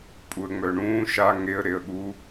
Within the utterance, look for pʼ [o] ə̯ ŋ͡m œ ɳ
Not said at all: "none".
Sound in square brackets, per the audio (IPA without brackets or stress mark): u